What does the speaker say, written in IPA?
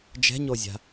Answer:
d͡ʒɛ̤ɲozʲa̤

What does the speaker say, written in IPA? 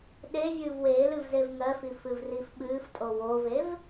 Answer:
ɗe vʲɨːvweːlɨv zevŋɜfi fɨvrifɓɨːftʼo wovev

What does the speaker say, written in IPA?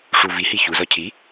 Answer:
ʂu vihi çuzɒ cʰi

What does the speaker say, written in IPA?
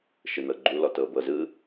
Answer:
ʃɯnɤɡ͡ǃu lɔtɤːbɤ zɯ

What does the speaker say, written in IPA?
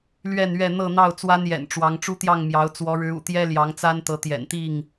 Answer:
lɥɛ˥˨nɥɛ˥˨ n̪ɤ˥˨n̪ɑ˥˨ʊ̯ t͡swa˦njɛ̰˨˩nʈ͡ʂwɑ˨˦ŋ ʈ͡ʂu˦t̪jɑ˥˨ŋmjɑ˨˦ʊ̯ t͡swɔ˨˦ɻɻ̩˨˦ ṵ˨˩t̪jɛ˦ ljɑ˨˦ŋt͡sa˦n t̪ɤ˨˦t̪jɛ̰˨˩nt̪i˥˨ŋ

